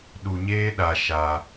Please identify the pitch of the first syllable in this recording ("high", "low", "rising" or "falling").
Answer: low